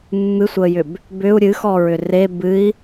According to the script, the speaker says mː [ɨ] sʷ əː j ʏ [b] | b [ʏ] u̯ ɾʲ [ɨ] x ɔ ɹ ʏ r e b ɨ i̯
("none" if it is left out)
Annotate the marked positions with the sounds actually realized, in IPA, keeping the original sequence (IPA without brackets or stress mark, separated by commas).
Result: ɨ, b, ʏ, ɨ